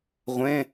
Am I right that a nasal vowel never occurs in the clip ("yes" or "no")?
no